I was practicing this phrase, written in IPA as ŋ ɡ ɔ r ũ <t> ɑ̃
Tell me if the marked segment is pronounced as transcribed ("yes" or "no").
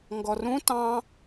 yes